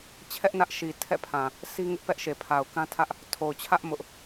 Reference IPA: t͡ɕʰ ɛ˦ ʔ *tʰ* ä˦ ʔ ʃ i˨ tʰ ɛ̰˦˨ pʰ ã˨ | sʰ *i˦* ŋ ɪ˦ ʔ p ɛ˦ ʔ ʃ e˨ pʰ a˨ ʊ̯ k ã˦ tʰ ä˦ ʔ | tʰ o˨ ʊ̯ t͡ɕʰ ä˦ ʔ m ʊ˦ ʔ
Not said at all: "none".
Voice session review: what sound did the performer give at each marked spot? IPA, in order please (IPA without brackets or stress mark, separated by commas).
n, i˦